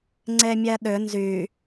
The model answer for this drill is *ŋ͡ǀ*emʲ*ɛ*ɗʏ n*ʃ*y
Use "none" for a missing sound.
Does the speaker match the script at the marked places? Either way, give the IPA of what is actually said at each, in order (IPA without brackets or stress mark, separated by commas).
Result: ŋ͡ǀ, ɛ, z